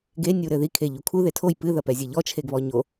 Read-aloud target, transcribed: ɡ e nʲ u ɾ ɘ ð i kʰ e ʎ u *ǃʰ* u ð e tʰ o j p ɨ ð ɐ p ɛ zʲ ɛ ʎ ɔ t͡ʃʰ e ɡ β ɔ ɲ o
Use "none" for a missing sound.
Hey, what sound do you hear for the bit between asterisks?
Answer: kʰ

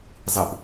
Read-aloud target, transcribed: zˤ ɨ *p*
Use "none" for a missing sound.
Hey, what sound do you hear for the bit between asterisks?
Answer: p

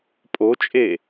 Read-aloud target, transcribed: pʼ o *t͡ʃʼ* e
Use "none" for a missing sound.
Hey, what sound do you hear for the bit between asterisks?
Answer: t͡ʃʼ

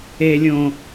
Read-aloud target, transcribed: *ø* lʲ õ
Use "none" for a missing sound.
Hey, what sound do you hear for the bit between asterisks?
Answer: e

